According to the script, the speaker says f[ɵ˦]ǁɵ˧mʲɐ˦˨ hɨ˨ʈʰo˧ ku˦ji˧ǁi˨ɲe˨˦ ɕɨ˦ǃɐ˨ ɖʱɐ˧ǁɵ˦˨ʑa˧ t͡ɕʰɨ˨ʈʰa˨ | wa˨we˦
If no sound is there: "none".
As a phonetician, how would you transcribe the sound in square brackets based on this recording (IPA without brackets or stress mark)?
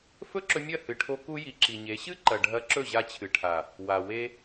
ɵ˦